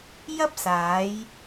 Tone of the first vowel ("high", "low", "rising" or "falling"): high